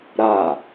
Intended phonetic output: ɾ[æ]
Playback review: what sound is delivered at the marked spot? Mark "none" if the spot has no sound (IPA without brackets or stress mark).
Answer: a